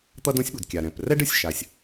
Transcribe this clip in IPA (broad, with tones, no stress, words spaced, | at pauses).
t̪ʌ˥dõ˥sʲ ɓu˩dkʲa˩ ɾɛ̃˩prɛ˥ɖ ɯ˩sʲ ʃa˩sʲ